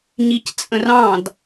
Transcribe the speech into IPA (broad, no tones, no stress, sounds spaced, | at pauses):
ɲ i c t͡sʼ ə̃ r ɑ̃ d